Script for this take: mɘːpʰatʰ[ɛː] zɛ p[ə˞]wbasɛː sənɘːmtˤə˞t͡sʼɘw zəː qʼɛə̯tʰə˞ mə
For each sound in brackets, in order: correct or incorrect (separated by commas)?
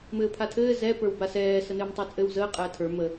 incorrect, correct